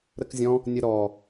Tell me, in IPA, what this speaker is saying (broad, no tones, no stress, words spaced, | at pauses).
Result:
ɾəkzʲɔ̃ | nʲəɾɔ